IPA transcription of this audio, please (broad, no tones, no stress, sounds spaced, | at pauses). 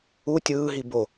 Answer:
u tʲ ɯː ɦ i b o